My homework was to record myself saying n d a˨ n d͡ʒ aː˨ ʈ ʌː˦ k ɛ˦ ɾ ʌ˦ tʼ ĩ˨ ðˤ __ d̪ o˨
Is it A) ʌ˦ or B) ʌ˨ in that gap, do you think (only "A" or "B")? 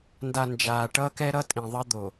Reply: A